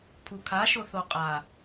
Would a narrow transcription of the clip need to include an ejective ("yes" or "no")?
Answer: yes